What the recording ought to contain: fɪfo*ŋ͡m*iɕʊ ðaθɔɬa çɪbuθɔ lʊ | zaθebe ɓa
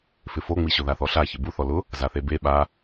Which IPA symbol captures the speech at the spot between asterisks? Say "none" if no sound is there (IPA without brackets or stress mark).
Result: ŋ͡m